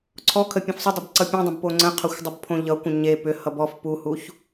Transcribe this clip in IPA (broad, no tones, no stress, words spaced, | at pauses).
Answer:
ǀʰɔkʰə pʲə̃fsˤʏdˤʌb ǀʌpʲõdˤə̃b poŋ͡ǀə̃qʰʌxʷ dˤəbpʰõʎʌkʷə̃ ɲe pʏhʌ bɔf puhuç